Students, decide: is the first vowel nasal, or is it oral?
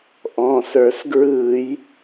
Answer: nasal